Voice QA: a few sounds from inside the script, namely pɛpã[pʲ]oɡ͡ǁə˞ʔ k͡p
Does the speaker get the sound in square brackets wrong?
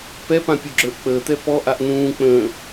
no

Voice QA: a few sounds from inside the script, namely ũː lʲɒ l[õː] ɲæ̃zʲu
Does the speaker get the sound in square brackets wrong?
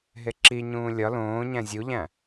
no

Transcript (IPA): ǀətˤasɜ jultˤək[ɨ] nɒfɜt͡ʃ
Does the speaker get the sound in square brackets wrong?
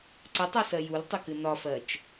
no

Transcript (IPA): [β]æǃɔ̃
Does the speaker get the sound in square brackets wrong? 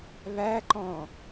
no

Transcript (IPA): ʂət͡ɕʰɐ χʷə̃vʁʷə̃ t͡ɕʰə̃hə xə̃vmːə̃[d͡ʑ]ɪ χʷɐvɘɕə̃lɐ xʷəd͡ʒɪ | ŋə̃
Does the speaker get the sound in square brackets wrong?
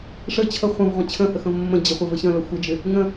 no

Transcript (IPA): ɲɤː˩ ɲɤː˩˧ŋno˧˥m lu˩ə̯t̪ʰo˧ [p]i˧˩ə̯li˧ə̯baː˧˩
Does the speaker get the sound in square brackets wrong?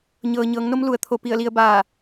no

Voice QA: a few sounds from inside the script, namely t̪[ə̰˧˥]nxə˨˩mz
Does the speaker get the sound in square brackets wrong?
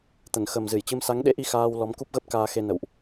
yes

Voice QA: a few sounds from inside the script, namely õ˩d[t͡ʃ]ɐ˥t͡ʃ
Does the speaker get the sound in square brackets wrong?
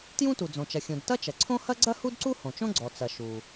yes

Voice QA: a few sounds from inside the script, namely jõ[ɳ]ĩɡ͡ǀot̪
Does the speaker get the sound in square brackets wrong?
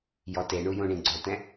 no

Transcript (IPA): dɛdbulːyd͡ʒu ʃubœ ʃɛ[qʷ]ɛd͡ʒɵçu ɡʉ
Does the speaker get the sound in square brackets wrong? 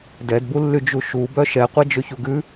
no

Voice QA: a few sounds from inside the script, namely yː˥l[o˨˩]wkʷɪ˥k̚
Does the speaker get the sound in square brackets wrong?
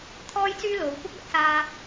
yes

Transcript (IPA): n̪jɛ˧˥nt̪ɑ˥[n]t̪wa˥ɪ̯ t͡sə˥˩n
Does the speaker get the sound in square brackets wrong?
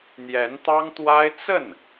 yes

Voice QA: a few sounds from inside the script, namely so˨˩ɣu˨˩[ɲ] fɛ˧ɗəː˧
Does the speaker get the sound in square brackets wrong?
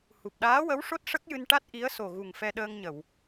yes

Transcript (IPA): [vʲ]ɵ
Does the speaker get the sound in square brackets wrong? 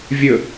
no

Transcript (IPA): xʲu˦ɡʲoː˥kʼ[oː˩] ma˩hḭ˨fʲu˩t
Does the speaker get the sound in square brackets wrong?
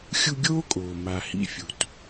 no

